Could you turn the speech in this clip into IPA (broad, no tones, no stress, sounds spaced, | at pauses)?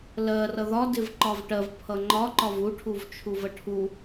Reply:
l ɜ r ʌ ð ɒ d ɪ v ǃ ɒ v ʈ ɜ v pʰ ʌ ŋ͡ǃ ɒ ǃ ɒ v u ʈʰ u v t͡ʃʰ u v ə ʈʰ u